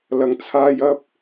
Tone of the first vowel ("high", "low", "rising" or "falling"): low